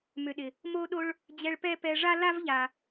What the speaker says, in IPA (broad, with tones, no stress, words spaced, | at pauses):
mʏ˨ɗɪ˩ | mo˥ɗo˥ɭ | d͡ʑɛ˦ɭpɛ˥pɛ˦ ʐa˥la˥vʎa˨